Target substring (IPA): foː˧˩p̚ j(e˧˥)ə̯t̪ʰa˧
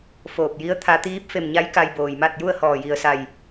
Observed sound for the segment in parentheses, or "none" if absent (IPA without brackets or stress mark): i˧˥